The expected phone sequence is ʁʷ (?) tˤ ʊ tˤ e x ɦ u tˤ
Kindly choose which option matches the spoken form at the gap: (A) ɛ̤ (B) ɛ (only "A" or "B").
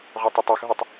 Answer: B